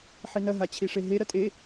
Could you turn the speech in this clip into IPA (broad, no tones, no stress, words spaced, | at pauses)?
ħinɐ ɦat͡ɕʰiʂeɦe ɾɐtʼe